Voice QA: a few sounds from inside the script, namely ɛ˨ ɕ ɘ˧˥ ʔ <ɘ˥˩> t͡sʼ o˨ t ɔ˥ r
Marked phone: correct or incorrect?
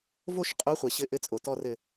incorrect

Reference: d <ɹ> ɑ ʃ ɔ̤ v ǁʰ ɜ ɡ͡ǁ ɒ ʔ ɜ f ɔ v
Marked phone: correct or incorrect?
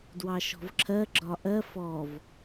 incorrect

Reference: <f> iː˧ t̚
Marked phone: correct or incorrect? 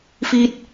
correct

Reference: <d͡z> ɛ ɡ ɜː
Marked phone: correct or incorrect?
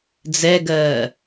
correct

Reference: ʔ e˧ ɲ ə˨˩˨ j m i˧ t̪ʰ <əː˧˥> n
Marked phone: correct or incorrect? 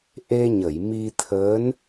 correct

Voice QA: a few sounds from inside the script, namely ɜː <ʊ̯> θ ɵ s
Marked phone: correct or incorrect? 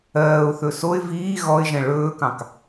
correct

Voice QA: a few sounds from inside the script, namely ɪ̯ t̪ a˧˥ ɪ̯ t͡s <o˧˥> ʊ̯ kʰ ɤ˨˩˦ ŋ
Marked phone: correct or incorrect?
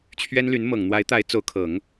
correct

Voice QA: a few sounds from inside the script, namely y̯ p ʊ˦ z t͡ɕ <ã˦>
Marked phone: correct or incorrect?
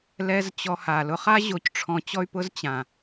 incorrect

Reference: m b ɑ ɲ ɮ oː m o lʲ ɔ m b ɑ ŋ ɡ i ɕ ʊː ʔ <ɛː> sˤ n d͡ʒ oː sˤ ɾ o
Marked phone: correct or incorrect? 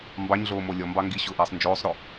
correct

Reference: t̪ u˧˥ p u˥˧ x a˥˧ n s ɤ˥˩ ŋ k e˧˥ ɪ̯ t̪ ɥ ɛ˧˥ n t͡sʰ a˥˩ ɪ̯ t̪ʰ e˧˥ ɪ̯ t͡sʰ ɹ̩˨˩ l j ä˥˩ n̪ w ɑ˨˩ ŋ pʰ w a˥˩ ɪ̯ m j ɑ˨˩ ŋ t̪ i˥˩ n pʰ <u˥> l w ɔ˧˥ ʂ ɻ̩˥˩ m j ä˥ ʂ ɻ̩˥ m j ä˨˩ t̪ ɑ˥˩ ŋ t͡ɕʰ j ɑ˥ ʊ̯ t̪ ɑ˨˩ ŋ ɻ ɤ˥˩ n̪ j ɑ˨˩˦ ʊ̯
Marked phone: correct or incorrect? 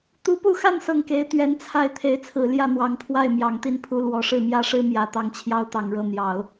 correct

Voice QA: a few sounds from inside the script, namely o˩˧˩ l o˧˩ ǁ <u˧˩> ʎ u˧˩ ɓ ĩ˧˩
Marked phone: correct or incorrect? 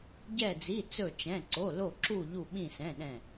correct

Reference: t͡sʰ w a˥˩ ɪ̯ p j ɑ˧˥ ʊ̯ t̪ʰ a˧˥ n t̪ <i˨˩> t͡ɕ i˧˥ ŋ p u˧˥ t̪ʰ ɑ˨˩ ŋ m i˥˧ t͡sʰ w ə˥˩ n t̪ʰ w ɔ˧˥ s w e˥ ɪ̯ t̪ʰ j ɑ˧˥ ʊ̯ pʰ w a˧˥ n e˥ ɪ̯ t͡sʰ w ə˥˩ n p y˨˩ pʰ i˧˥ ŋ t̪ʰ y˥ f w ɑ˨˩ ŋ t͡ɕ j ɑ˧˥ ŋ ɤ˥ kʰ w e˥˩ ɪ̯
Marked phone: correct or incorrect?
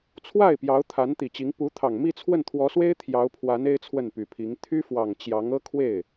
correct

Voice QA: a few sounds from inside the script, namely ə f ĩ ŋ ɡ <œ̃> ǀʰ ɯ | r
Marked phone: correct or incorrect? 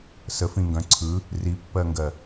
correct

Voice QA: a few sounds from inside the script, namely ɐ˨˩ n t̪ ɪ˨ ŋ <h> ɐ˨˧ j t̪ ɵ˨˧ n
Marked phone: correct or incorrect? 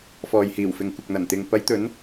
incorrect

